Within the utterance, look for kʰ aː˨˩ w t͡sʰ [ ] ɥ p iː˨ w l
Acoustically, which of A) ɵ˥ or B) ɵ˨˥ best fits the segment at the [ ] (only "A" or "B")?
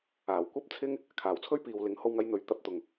A